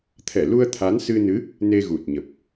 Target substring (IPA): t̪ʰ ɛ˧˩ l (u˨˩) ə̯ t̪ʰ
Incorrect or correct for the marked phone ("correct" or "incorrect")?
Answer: incorrect